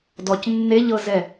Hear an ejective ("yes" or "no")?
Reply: no